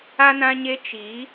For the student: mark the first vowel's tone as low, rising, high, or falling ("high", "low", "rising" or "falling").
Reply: high